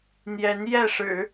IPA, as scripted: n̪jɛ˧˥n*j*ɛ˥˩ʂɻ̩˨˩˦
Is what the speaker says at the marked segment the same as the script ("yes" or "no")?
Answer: yes